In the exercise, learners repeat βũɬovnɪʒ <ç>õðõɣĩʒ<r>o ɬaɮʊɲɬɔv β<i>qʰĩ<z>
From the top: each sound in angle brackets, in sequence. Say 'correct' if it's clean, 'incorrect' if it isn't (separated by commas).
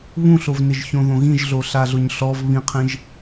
correct, incorrect, incorrect, incorrect